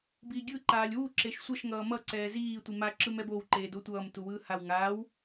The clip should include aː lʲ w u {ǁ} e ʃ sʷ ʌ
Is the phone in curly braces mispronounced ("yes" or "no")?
no